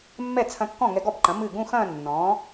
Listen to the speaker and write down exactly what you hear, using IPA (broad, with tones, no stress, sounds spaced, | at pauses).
mː ɛ˥˩ t͡sʰ ɐ̃˧ kː ɔ̃˥˩ ŋ ɛ˧ ɡ ɔ˥˩ b ǃ ɐ̃˩˥ m ɨ˥˩ ɡ ũ˥˧ x ɐ̃ː˥˧ nː ɔ̃ː˩˥